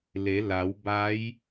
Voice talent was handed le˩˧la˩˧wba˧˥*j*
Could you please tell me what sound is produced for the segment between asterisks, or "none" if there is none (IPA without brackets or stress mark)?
j